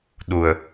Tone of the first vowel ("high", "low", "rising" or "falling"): low